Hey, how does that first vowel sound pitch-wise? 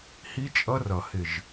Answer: high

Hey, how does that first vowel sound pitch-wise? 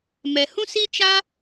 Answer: low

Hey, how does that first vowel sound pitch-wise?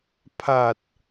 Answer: low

